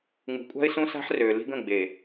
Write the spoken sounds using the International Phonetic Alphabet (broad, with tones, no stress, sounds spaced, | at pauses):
ŋ͡m ṳ˨ kʷʼ a̤˦ ɪ̯ s ũ˦ s a̤˦ ħ r øː˨ l i̤˦ ɡ ə̃˦˨ ɡ͡b e˨